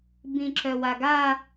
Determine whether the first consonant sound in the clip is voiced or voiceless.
voiced